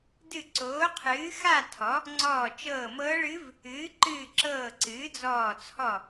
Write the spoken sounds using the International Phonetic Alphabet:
dɨ˧˩ǀoː˩˥qʰɨː˩˥ xa˥˨tʰɔ˩˥ | ŋ͡ǀɔː˧˩t͡ʃɤː˧˩mɤː˧˥ɭɨ˧˥v | ɨː˩˥ǃɨː˧˩ǁɤː˧˩ ǀɨː˩˥d͡zɔː˧˩t͡sʰɔ˧˩

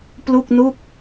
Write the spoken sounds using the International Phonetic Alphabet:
plu˥˩k̚nu˥˩k̚

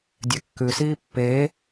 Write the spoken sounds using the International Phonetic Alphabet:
dʲɛkːʉsiː pːeː

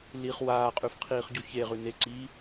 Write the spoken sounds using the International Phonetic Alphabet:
liχ waːqʼʉf qʰiːχɟuçeʁʉ neǀiː

